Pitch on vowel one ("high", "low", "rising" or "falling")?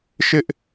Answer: high